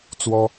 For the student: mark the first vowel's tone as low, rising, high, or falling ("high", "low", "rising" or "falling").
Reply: high